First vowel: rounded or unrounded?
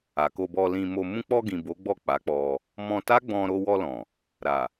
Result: unrounded